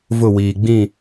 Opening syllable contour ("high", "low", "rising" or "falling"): falling